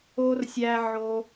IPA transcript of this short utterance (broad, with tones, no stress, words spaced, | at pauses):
o˥rsʲæ˥ʕo˥